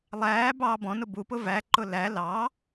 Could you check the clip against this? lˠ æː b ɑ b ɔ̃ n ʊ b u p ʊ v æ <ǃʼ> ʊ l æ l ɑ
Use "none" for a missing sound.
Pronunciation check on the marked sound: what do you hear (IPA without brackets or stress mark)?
ǃ